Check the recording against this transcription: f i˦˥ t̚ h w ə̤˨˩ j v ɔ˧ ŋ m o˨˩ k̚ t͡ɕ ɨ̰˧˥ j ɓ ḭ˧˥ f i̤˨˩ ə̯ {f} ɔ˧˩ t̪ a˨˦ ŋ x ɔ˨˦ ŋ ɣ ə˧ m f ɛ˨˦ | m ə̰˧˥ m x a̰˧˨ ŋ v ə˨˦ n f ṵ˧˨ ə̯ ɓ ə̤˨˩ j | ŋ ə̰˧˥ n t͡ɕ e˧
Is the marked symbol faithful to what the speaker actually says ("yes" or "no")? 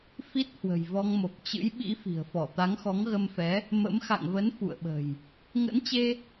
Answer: yes